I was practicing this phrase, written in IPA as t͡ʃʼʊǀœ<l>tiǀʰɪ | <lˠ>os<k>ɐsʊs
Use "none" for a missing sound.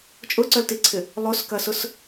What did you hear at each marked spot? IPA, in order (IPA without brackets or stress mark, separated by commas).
l, lˠ, k